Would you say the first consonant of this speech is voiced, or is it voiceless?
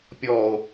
voiceless